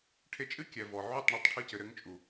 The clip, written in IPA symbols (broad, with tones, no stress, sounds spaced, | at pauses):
ʈʰ e˧ t͡ʃʼ ɨ˦ kʲ ɛ˨ v ɔ˨ ʕ u˦˨ tˤ ɳ ɨ˧ tˤ ʈʰ ɨ˧ c ɘ˨ ɾ ɘ˧ ŋ t͡ʃʼ u˨